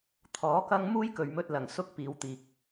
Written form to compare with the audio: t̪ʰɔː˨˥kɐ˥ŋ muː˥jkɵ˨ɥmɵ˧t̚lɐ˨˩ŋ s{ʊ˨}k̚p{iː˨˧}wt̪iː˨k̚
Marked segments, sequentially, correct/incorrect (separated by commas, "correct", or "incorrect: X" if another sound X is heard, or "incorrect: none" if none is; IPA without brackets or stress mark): incorrect: ʊ˥, correct